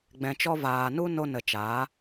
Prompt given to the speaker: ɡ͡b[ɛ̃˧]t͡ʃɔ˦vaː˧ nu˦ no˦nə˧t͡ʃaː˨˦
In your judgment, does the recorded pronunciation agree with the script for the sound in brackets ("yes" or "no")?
yes